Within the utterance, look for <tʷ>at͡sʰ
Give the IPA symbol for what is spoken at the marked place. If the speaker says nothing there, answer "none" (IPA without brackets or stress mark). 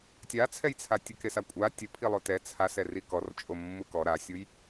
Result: tʲ